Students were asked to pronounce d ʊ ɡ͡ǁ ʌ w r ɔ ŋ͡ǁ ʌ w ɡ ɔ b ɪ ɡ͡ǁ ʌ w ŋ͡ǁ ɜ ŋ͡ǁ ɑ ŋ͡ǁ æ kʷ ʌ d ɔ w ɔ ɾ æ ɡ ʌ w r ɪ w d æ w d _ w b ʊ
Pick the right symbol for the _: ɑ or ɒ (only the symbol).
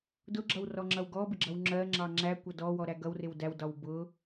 ɒ